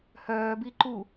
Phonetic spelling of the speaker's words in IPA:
hœː biǃu

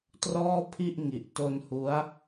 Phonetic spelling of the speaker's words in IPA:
trɔː˥˩ pʰi˥˩ʔŋi˨˩ʔ to˧nhu˦˥a̯

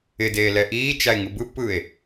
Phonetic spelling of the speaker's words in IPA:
ɪdeː lɛʔiːt͡ʃae̯ ŋɯbɯpːɯːe̯

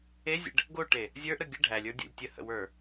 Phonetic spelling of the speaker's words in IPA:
ezʲə̰ɖ | ɡoʈe | zʲə˞ʔɾə ɡʲə ɖʱælʲə˞dʲo̰lʲ tʲəhə̰wə˞

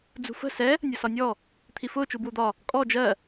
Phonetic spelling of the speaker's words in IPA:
d͡zṳfə̤ sɛ | nʲʌsɒnʲɔ | t̪ʰifʊː t͡ʃubwud̪ɒ | kʼɔ d͡ʒɜ

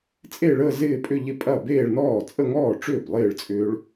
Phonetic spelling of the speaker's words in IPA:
t͡sʼe˥˧ɭəː˥˧ zɪː˥˧pʼʏ˥˧ʎɪ˥˧pʼɐ˥˩ beː˥˧ɭnɔː˥˩ t͡sʼə˥˧ŋɔː˥˩ʈ͡ʂʏː˥˩b lˠɪː˥˩ɭt͡sʼʏː˦˥ɭ

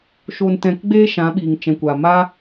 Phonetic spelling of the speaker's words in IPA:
ʃo˧ntɛ̃˧kɡ͡beː˦ ʃã˨˦ɓiː˨ŋt͡ʃɛ̃˨kʷa˨ ma˦

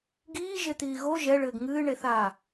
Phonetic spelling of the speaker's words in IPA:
ɡiːʒet̪iː ɣo ʒɛɭɘːɡ ŋɨːɳeθaː

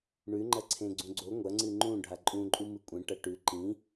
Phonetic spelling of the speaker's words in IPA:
ɳʉŋ͡ǃɐǀʰẽ ɡ͡ǀũɡ͡ǀo ŋʷɐŋ͡ǀɨ ŋ͡ǃũ ɖʱaǃʼũǃʼu mɨkʷʼẽʈɐ ʈʉ ǃĩ

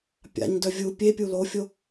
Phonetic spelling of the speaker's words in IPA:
pʲa̰ɲdœ vʲu pʲepʲu lofʲo

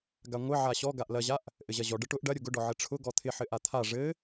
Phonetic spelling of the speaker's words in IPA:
ɡaŋʷɘ ʕaɕɔ ɡaʔlɐʑaʔ | ʔɘʑɐʑɔ ɖəʈʊʔ ɖɐɾʲʊ ɡʊɖɔ ʕɘʈ͡ʂʰʊ ɡɔt̪ʰɪħɘ ʔat̪ʰa ʐɘ

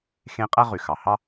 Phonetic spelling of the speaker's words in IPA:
xẽ˧˥ qʼæ˥ʁy˩ xɑ˩hɑ˥

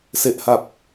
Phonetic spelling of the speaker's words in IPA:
se˨˩ʔha˨˩p̚

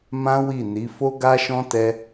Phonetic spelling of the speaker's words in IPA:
mã˦wi˦˨ni˨˦ fo˦ɡa˦ʃɔ̃˦tɛ˦

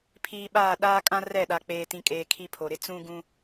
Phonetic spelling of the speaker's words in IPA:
pʰiː˨ɓaː˦˨ ɗaː˦kʼã˦ rɛ˦˨ɗa˨ k͡peː˦tĩ˦kʼeː˦ kʰi˦pʰo˨ɾɪ˦ t͡sũ˦ɡũ˦

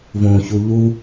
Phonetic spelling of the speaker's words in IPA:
võçu ʎu

